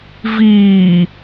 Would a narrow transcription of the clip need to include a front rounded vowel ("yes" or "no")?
no